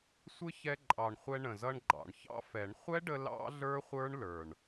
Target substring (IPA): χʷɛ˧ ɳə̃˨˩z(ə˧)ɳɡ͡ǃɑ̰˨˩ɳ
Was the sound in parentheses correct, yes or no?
no